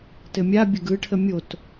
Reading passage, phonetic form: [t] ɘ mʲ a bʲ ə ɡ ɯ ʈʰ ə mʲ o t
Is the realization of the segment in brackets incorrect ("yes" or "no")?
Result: no